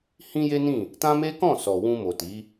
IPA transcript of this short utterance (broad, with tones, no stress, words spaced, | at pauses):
hĩ˦je˦nĩ˦˨ | tã˦me˦kɔ̃˦˨sɔ˨ wũ˧mo˨ti˨˦